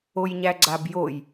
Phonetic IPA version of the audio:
o j ɲ æ ɡ͡ǀ a b j o j

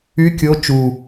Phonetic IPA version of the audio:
y kʲ o t͡ʃ u

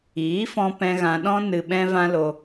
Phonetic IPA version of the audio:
iː˨˦ f ɔ̃˧ p ɛ̃˧ ɣ ã˧ ɗ ɔ̃˦ n ɨ˧ ɓ ɛ̃˦ v ã˦ l o˧

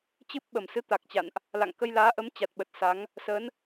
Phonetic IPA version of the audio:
t͡ɕ ɨ˦˥ p̚ ɓ ə˨˩ m s ɨ˨˦ t̪ a˨˩ k̚ t͡ɕ a̰˧˨ n ʔ | l a̰˧˨ ŋ k ə˧ j l aː˨˦ ʔ ə˨˦ m t͡ɕ a˨˩ t̚ ɓ ə˨˩ t̚ s a˨˦ ŋ | s ə˨˦ n

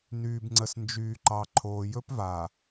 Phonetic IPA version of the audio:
n yː˨ b ŋ͡ǀ ə˨ s n d͡ʒ yː˨ ǃ ɑ˨ ǃʰ oː˨ j ɵ˦ p v a˨

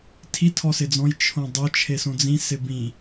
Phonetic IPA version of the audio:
tʰ i tʰ ɔ s ɪ d͡z ɔ̃ j t͡ʃʰ õ dˤ o t͡ʃʰ e s õ d͡z ĩ s ɪ b ĩ

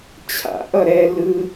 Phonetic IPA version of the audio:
t͡ɕʰ a̰ ʔ ʌ ɾ ɛ l ɯ

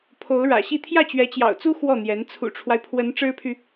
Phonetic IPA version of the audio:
pʰ o˧˥ ʊ̯ ɻ ä̰˨˩ ɕ i˥˧ t̪ʰ j ä˥˩ t͡ɕ ɥ ɛ˧˥ t͡ɕ j ɑ̰˨˩ ʊ̯ t͡s u˥ x w ɔ˥˩ n̪ j ɛ˧˥ n t͡sʰ ṵ˨˩ ʈ͡ʂʰ w a˦ ɪ̯ pʰ w ə˧˥ n ʈ͡ʂ ɻ̩˥ pʰ y˨

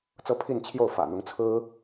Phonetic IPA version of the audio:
t͡s ɤ˥ pʰ i˥˧ n t͡ɕʰ j o˥˩ ʊ̯ f ä̰˨˩ n̪ ʊ˧˥ ŋ t͡sʰ ɹ̩˥

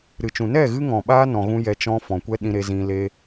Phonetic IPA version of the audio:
ɾ ɨ˨ t͡ʃ ũ˨ n ɛ˦˨ ɣ ɨ˦ ŋ ɔ̃˨ ɓ aː˦ n ɔ̃˧ ɣ ũ˦ j ɛ˧ t͡ʃ ɔ̃˦ f ɔ̃˨ kʷ ɛ˦ ɗ ĩ˧ ɾ e˧ z ĩ˧ l e˦

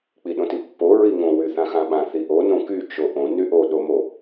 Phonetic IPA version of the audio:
k͡p i ɗ õ t i pː o ɹ i ŋ õ w y θ ã x ã ɓ ã θ i ʔ o n õ k y t͡ʃ o ʔ õ n y ʔ o ɗ o m o

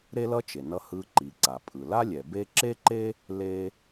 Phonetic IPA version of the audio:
ɾ e˥ l ʌ˥ t͡ʃ e˩ n ʌ˧ h ɯ˧ ǃ i˩ ǀ a˩ pʼ ɯ˩ l a˥ lʲ ɛ˩ b e˥ ǁ e˥ ǃ e˥ | l e˧

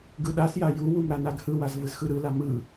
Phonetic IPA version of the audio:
ɡ ɯ ɗ a s j a j u w u m ɾ a n a ɡ h ɯ w a z v ɯ z x ɯ ɾ ɯ l a m ɯ

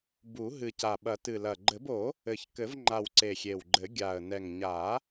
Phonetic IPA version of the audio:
b u˨˩˦ ɦ ɨ˨˩ c a˨˩ ɓ ɐ˨˩˦ t ɨ˨˩ l ɐ˨˩ ɡ͡ǃ ɘ˨˩˦ b o˨˩˦ | ɘ˨˩ ç k ɘ˨˩˦ v ŋ͡ǃ a˨˩ w ǀ e˨˩ xʲ e˨˩ w ɡ͡ǃ ɘ˨˩˦ ɡʲ a˨˩ ə̯ n ɛ˨˩ ŋ ɲ a˨˩˦

